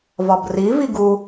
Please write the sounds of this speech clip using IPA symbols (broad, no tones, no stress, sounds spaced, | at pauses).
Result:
v ɒ b r i v i ɡ u